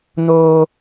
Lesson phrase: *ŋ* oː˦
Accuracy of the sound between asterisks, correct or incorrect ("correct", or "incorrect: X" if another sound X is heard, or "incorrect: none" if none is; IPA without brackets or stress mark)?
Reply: incorrect: n